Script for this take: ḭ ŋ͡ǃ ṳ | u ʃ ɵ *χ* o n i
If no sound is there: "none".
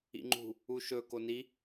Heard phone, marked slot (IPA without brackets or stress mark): k